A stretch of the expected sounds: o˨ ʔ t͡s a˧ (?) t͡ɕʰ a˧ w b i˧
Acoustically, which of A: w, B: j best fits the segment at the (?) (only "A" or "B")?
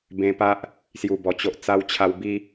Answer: A